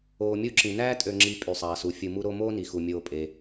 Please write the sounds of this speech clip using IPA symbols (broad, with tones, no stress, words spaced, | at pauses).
oː˨mʲu˦ ǁĩ˩næː˥tʼø˨ŋ͡ǁi˨ pʼy˩sˤɑː˩su˩ fʲɯ˨mu˦ɾo˦ moː˥ni˩xu˩ mʲoː˨pʼe˩